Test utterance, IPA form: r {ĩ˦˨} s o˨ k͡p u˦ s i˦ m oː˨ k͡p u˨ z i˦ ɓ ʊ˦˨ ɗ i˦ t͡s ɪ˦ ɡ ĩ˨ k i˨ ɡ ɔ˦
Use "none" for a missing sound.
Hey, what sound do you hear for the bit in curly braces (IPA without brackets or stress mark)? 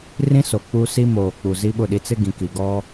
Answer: ĩ˦